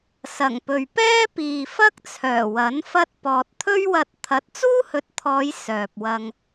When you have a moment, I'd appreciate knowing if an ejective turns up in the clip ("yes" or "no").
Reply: no